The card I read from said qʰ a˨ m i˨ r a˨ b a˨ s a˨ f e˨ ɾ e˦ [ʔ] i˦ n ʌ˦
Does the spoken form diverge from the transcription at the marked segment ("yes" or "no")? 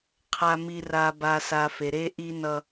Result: no